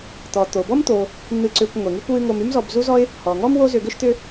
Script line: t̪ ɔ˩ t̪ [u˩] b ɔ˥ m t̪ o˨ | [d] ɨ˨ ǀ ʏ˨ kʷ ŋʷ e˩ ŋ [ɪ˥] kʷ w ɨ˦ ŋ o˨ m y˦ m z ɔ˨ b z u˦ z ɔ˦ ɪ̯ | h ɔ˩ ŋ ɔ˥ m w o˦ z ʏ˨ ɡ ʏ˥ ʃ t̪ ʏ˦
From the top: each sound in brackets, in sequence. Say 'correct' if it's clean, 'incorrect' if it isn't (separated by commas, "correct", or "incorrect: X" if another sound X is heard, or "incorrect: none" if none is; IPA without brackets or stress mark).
incorrect: o˩, incorrect: n̪, incorrect: y˥